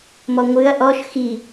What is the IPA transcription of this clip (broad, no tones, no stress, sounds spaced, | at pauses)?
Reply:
m ɔ ŋʷ ɨ ɐ̯ ʔ ɔ ʃ x i